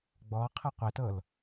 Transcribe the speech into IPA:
ɡ͡b ɔ qʰ ɯ qʷ e t ɤ l

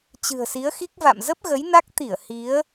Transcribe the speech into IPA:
t͡ɕ ɨ̤˨˩ ə̯ s i˨˦ ə̯ x i˦˥ k̚ v a̰˧˨ m z ə˦˥ p̚ ɣ ə˨˦ j n a˦˥ k̚ t̪ i˧˩ ə̯ h i˨˦ ə̯

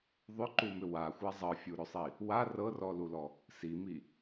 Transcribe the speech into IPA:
ðˤ ʏ ǃ u m ʏ w a xʷ a zˤ ɤ fʲ u ɾ ʏ sˤ i | w a r ɤ r ɔ l u l ɔ | s i m i

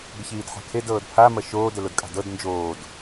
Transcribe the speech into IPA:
ɡ ɘ ç iː d ħ a̤ kʰ e d ɤː d pʰ a m ɐ ʃ oː d ɘ l o d kʼ a̤ d ɤ d n d͡ʒ oː d

